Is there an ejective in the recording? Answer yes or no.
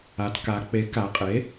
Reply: yes